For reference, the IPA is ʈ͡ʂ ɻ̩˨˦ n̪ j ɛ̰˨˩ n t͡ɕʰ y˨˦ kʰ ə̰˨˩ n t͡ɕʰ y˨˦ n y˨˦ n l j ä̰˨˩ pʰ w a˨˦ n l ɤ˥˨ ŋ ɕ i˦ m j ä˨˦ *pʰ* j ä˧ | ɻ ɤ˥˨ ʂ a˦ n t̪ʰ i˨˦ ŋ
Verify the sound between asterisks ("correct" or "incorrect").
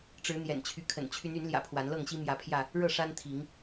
correct